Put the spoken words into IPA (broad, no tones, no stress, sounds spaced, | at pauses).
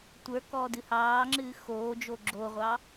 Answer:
tʷ ə˞ k ɔː d ɨ h ɑː ŋ͡ǁ ɨː x oː d͡ʒ o ɡ͡ǁ o ʁʷ ɑ